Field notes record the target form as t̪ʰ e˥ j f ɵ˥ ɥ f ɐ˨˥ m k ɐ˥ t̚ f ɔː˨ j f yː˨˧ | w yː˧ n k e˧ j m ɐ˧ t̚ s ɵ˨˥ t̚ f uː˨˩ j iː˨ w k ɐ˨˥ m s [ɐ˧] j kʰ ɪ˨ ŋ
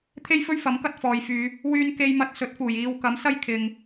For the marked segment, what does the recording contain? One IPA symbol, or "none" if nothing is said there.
ɐ˥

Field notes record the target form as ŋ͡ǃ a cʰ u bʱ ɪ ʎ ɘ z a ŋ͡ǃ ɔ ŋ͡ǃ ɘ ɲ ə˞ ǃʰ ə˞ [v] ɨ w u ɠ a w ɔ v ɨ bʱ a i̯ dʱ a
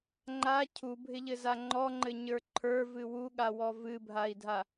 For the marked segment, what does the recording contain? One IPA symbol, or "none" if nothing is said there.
v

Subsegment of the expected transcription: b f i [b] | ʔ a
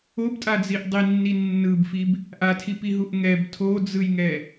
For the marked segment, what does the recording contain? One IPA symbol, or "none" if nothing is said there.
b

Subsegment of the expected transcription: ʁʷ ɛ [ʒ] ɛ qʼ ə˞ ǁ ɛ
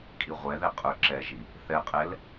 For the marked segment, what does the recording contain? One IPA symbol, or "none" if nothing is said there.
ð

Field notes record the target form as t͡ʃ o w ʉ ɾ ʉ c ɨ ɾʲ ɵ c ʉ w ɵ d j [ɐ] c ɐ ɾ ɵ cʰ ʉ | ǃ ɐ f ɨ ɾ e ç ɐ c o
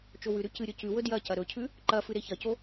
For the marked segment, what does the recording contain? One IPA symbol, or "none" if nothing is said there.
ɐ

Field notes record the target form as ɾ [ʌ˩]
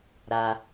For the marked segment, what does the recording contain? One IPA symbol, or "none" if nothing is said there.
a˩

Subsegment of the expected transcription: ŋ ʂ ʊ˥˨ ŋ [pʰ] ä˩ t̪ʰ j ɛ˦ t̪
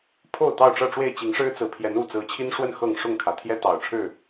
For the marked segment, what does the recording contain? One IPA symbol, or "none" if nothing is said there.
kʰ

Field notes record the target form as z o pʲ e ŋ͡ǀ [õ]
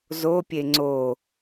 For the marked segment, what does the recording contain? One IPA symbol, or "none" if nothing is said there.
o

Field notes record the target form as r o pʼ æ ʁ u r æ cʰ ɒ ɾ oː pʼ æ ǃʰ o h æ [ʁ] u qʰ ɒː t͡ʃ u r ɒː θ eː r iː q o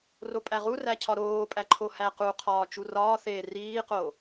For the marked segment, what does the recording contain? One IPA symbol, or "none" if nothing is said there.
q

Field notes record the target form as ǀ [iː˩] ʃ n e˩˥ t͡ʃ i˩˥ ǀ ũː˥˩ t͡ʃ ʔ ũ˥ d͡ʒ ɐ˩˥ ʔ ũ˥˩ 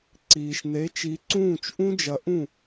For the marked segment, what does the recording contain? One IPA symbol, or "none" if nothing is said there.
iː˩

